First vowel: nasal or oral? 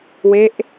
oral